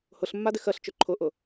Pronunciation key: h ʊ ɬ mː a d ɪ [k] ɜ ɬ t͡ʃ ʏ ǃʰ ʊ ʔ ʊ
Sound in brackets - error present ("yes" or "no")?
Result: yes